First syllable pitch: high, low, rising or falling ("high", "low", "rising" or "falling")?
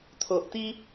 low